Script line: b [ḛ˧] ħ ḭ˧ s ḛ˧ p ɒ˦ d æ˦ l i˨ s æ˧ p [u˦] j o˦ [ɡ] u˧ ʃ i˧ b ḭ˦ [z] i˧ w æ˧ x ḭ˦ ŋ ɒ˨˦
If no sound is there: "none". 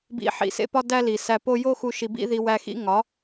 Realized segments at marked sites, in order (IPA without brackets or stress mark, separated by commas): ḭ˧, o˦, x, ð